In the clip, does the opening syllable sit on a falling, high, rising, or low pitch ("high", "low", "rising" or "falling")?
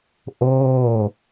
falling